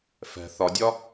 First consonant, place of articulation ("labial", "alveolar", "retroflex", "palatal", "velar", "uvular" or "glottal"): labial